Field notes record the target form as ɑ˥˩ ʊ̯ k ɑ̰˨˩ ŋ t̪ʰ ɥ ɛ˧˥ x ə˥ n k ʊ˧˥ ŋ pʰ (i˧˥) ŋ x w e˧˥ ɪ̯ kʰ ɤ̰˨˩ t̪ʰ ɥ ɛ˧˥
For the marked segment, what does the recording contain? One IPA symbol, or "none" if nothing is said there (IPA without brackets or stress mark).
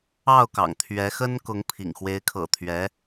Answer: ḭ˨˩